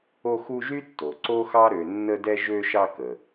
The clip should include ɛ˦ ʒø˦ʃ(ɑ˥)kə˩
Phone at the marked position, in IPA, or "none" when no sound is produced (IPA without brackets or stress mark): ɑ˦